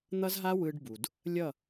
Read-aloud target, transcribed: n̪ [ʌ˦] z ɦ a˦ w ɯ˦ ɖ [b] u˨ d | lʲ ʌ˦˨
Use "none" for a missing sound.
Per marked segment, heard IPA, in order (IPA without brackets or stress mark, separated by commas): ʌ˦, b